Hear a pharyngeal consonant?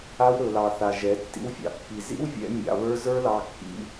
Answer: no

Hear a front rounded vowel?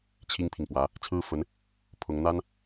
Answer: no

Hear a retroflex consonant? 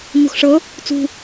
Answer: yes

